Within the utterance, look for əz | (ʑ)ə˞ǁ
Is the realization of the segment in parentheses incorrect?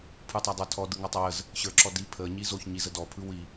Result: yes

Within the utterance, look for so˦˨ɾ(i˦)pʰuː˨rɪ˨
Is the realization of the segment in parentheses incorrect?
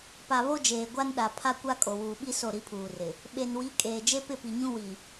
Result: no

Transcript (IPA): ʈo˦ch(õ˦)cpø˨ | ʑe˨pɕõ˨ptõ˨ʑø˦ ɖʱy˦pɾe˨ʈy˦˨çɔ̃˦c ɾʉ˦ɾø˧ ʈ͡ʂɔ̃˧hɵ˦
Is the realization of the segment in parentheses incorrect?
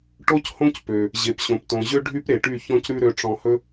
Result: no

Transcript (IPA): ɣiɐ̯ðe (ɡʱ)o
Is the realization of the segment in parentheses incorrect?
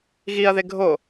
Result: no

